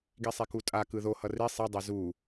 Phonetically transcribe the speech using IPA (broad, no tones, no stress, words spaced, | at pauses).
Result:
ɡisˤekutʼa kɯðo hʌri sˤi dˤezu